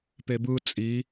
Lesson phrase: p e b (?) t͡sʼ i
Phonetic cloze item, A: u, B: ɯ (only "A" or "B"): B